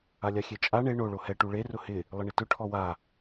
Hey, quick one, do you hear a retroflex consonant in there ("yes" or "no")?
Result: yes